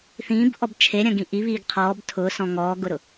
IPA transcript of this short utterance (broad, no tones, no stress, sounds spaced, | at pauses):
θ ĩː b ʔ ɔ b t͡ʃʰ e ɾʲ ɐ̃ ɡ ĩ ʔ i β iː ɡ qʰ ɔː b tʰ ʊː s ɔ̃ ŋ ɔː ɡ ʊ ɾ ʊ